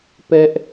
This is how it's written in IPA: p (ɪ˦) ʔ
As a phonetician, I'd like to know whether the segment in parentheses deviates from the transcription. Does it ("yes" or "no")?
yes